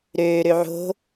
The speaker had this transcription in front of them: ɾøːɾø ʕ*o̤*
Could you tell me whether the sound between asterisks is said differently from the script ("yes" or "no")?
no